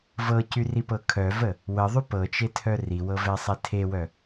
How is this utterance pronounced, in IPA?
v ɤ c y r i p ɤ kʰ œ v ə | w ə ðˤ y p ɤ t͡ʃ e tʰ œ r i w ɤ v ɛ sˤ ɛ tʰ e w œ

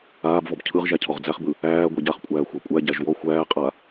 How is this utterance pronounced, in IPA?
aː b v ɔ b cʰ ɯ ʁ ʒ æ cʰ ɔ ʁ d͡z æ χ b ɯ | æː ɡʷ ɛ ɟ a χ kʷʼ æː xʷ a kʷʼ æ ɟ æ ʒ w ɔ xʷ æː qʼ a

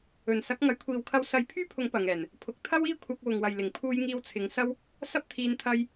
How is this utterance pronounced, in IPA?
ɵ˨˩ n s ɐ˨˥ k̚ ŋ ɐ˨˥ j kʷʰ iː˨ w kʰ ɐ˧ w s ɐ˧ j pʰ yː˥ pʰ ʊ˨˥ ŋ p ɐ˨ ŋ ɛː˨˩ n | pʰ ʊ˨ k̚ t̪ʰ ɐ˥ w iː˥ kʷʰ ɐ˧ k̚ w ʊ˨ ŋ w ɐ˨ j l ɪ˨˩ ŋ pʰ uː˧ j ŋ iː˧ w t͡sʰ ɪ˨˧ ŋ s ɐ˥ w | s ɐ˥ p̚ t̪ʰ iː˧ n t̪ʰ ɐ˧ j

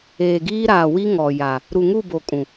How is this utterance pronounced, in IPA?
eː˨ ɡ iː˦ ɾ aː˨ w i˦ ŋ ɔ˨ j a˨ | ɾ u˨ ŋ u˦˨ b o˨ kʼ ũ˨

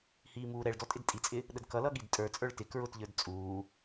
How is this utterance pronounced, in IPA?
h iː m uː ɾ ɛ ɭ d ɔ tʼ ɪ d tʼ i t͡sʼ ɪ | ɗ ə d k ʌ l ʌ ɠ i d tʼ ə˞ t͡sʼ ə˞ ɭ t ɪ k ɹ ʊ t ʎ ə˞ d t͡sʼ uː

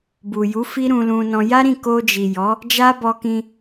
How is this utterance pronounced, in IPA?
b u˨ j u˨˦ f i˦ ɾ ũ˧ l ũ˧ n ɔ̃˧ j a˦ ɾ ĩ˦˨ k o˧ d͡ʒ i˨ j ɔ˨˦ | d͡ʒ a˦ b ɔ˧ k ĩ˧

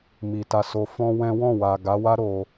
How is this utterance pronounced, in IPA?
m i˨ t a˧ s o˧ f ɔ̃˦ w ɛ̃˦ w ɔ̃˦˨ w a˨ ɡ a˨˦ w a˦ ɾ o˧

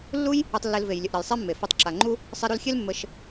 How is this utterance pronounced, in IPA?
lː u˦ j | ɯ˧ tˤ lː e˧ l v e˨ j lʲ ə˨ ʔ ɾ ə˨ j sˤ e˦ mː e˨ f ɛ˧ tˤ ǁ a˨ ŋ͡ǃ u˦ | sˤ e˧ ɾ u˧ l xʲ e˦ l mː ə˧ ʃ

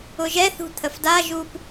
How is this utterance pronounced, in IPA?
ʊ ʒ ɛ θ ṳ t̪ʰ ə f d a ʒ u p

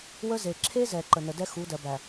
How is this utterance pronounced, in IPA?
w ə˦ z e˨ ǁʰ e˦ z ɛ˨ ǃ ə˨ n ə˨ d ɛ˦ x u˨˦ d ɜ˨ b æ˨

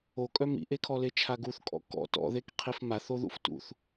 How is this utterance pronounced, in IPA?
o kʼ œ m ḭ ʔ e kʰ ɔ l e t͡ʃʰ a ɡ u θ kʼ ɔ̰ k ɔ̰ t ɔ̰ ð e k qʰ i f m a θ o ð ṵ f t ṵ θ

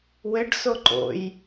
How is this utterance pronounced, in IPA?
w ɘ ɖ s o ǃ o̰ j

